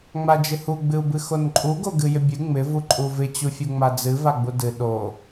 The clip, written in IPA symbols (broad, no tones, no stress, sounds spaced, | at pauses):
ŋ͡m a d͡ʒ ɪ h u ɡ͡b ɨ u̯ b ɨ x o n ǃʼ u ɡ o ɡ ɨ j ɪ bʲ ɨ ŋ͡m ɪ v u ǃʼ u v ɪ t͡ɕ u fʲ u ŋ͡m a d͡z ɨ v a ɡ͡b u d ɨ ɗ o